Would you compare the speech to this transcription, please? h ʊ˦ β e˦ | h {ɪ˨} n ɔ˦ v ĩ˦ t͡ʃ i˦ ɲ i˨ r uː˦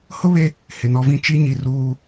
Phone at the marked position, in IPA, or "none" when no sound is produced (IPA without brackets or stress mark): ɪ˨